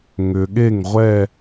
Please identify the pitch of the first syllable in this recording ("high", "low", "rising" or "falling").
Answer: low